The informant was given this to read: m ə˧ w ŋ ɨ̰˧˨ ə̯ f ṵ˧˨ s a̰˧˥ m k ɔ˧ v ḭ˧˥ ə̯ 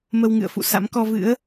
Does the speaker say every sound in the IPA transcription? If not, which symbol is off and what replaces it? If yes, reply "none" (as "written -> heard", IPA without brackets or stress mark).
ḭ˧˥ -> ɨ̰˧˥